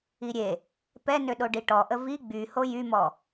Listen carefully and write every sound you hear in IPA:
i ɾʲ e | p ɛ n ø ɗ o ɖ i ʈ ɔ ʔ ə v i ɡ͡b y h o j y m ɔ

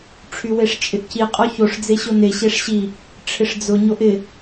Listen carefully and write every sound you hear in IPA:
ʈ͡ʂʰ y w e ʂ t͡ʃʼ ɪ ʔ c i qʼ ɔ ç o ʂ d͡z e ɕ o n e ɕ e ʂ ɕ i | ʈ͡ʂʰ ɪ ʂ d͡z ʊ ɲ o ʔ ɪ

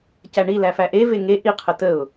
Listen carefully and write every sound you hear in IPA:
c æ ɳ i l æ f æ ʔ e v e ŋ e ʔ i qʰ ə t ə ʊ̯

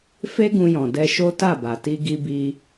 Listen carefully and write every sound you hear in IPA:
f e˦ ɡ ũ˧ j ɔ̃˨ d ɛ˧ ʃ o˦ t a˦˨ b a˨ t i˧ ɡ i˧ b i˧

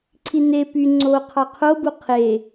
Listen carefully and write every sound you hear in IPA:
ǀʰ i n e p y ŋ͡ǀ o qʰ ɑ qʰ o b u qʰ e

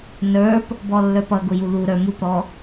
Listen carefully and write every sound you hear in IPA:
n ə˞ p | b ɔ lː ə˞ p ʌ ɡ ʊ j u ð u ɾ ə˞ m u p ɾ ɔ

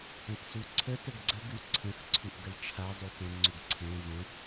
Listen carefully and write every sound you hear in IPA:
ə̃ t s u ǀʰ ə t ə ɡ ɡ͡ǀ ə ɡ ʉ ǀʰ ə̃ x ǀʰ ʉ ʔ ɡ ə l ʈ͡ʂʰ a zˤ u t ə̃ ŋ͡ǀ u ɡ ǀʰ ẽ v ə̃

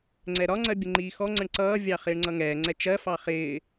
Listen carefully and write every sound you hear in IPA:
ŋ͡ǀ ɛ ɾ ɒ ŋ͡ǀ ɜ bʲ ə ŋ͡ǃ iː x ɔ ŋ͡ǀ ə ɳ ǀ ʌː vʲ ɑ χ ɪː ɳ ŋ͡ǀ ʌ ŋ ɛː ŋ͡ǀ ɛ t͡ʃ ɜ f ɑ χ ɪː

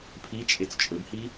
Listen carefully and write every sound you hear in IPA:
pʰ i t͡ʃʼ e t͡s t͡ʃʼ ɵ b h i

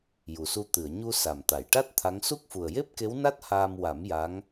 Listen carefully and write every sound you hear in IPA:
j u˨˩ s u˧ t̪ ɨ˨˩˨ ə̯ ɲ u˧ s a˨˩ m t̪ a˨˩˨ j ʈ a˦˥ t̚ t̪ʰ a˧˥ ŋ s u˦˥ k̚ f u˨˩ ə̯ j e˦˥ p̚ k e˧˥ w n a˦˥ t̚ h aː˧ m w a˨˩˦ m j a˧˥ ŋ

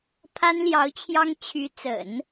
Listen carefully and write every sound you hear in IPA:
pʰ a˥ n l j ɑ˧˥ ʊ̯ t͡ɕʰ j ɑ˥ ŋ t͡ɕʰ y˧˥ t͡s ə̰˨˩˦ n

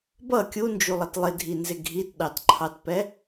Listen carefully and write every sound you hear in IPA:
b ʌ kʲ u n d͡ʒ u lˠ ʌ t lˠ ɪ dʱ i n z ɪ ɡʱ i t ɗ ɑ t ǃʰ ɑ t p ɛ

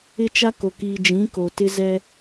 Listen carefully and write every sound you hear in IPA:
ɪ˦ t͡ʃ a˦ k o˨ k iː˨ d͡ʒ ĩ˨˦ k o˨ t ɪ˦ z ɛ˦

